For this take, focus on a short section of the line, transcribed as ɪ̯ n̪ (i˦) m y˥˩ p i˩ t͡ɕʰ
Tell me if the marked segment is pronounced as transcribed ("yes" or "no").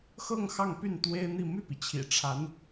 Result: no